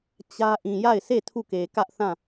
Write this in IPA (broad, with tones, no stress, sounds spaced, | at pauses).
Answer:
t͡ɕ ä˦ ʔ ĩ˨ j a˦˨ ɪ̯ s e˦˨ tʰ u˦˨ k e˨ k ä˦ ʔ θ ã˦˨